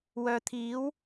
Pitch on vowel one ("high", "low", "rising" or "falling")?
low